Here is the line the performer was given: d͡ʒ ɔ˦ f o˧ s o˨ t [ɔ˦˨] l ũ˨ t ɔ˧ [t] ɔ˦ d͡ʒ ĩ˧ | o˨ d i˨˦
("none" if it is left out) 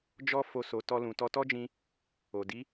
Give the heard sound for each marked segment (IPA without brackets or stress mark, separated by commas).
ɔ˧, t